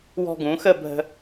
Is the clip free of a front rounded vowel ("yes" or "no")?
yes